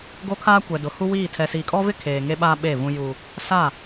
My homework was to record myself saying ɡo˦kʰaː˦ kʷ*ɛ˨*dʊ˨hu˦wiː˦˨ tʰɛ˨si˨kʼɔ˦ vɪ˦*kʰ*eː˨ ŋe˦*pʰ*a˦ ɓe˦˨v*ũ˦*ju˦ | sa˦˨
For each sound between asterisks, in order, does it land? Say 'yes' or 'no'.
yes, yes, no, yes

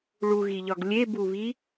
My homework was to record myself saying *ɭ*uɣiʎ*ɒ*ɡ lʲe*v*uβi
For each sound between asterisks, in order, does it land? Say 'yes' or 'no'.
yes, yes, no

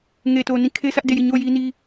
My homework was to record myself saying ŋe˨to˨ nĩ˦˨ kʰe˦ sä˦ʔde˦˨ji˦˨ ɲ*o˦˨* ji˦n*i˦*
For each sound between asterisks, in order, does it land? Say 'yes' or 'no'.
yes, yes

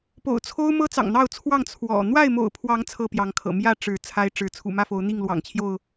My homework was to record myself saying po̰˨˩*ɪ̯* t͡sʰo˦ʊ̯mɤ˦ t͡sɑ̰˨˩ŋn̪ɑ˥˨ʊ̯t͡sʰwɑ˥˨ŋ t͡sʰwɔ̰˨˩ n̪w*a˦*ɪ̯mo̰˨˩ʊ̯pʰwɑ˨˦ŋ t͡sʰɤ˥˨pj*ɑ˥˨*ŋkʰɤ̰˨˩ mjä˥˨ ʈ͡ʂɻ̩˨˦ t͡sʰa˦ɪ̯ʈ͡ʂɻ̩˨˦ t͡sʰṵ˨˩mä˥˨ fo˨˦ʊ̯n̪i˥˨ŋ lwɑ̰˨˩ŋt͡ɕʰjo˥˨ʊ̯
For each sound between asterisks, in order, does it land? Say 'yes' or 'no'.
no, no, no

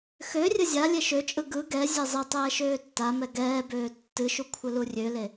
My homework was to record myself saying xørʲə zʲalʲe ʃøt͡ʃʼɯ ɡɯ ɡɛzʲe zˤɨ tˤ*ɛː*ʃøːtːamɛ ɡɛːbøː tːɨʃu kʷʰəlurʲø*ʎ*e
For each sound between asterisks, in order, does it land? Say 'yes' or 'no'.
yes, no

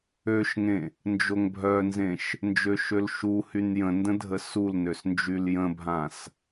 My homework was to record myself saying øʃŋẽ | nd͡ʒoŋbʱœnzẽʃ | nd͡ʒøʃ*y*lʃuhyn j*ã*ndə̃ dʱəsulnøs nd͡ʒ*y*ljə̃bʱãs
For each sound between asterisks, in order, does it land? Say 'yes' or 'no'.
no, no, yes

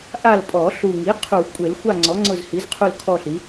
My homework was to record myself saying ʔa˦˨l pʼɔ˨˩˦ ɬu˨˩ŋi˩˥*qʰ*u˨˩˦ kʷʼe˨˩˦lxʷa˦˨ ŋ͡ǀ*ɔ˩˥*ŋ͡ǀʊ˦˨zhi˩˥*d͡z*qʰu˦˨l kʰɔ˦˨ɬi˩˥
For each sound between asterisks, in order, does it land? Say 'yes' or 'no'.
yes, yes, no

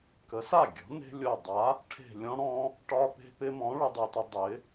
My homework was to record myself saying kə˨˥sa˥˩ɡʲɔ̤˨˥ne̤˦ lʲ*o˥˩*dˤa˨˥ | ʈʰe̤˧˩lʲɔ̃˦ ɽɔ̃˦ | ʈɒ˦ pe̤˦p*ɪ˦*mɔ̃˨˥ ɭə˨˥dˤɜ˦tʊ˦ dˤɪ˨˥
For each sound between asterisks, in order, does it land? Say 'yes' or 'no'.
no, yes

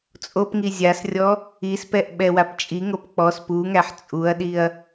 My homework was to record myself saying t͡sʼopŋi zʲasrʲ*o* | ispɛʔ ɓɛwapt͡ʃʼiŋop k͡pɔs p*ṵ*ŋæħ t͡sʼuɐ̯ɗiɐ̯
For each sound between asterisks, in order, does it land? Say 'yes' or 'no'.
no, no

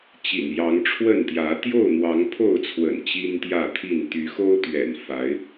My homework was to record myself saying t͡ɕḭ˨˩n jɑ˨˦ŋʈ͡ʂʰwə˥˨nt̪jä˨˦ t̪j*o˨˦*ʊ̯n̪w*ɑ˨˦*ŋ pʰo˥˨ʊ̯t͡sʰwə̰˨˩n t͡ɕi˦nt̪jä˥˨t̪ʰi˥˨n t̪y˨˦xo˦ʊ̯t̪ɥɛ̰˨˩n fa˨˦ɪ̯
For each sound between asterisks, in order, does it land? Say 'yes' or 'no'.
no, yes

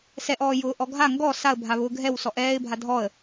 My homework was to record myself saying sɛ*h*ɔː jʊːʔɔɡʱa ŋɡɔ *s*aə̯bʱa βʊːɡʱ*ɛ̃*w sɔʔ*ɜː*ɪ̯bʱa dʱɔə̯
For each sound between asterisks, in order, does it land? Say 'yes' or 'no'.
no, yes, no, no

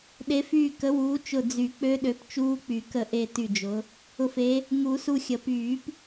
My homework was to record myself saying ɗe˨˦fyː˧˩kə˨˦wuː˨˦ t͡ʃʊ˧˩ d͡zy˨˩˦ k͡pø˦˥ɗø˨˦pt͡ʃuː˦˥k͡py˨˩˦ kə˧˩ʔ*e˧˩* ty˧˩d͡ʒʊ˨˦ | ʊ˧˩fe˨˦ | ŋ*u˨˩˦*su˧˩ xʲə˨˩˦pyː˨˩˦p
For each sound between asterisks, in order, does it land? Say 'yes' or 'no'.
yes, yes

